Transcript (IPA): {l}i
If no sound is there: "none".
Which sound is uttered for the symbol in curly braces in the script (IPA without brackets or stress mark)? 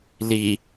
l